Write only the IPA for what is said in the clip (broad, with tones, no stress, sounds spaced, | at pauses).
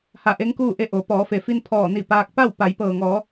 h a˧˩ ʔ e˧˥ ŋ k uː˥˨ ʔ e˥˨ ʔ o˩˧ p ɔː˩˧ f e˩ f i˧ n pʰ ɔː˧˩ n i˧˩ p aː˧ k̚ p a˥˨ w p a˩˧ j p ɤː˩ ŋ ɔː˩˧